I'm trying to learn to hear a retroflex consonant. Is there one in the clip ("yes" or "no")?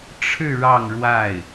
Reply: yes